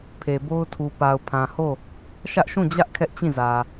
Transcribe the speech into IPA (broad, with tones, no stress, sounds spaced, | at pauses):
pʰ e˨ b o˦ ʊ̯ tʰ u˨ p a˨ ʊ̯ pʰ ã˨ h o˦˨ | ʃ ä˦ ʔ ʃ ũ˦˨ d͡ʑ ä˦ ʔ kʰ ɛ˦ ʔ t͡ɕ ĩ˦˨ z ä˨